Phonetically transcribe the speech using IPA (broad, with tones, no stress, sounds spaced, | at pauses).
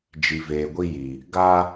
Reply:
d͡ʒ i˨ v eː˨ ɡʷ i˦ j i˨ | ɡ a˦